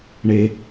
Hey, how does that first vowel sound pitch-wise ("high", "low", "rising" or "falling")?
low